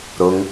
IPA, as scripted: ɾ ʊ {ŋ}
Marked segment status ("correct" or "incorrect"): correct